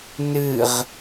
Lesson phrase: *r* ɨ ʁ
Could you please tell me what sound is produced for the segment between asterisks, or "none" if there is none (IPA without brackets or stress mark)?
n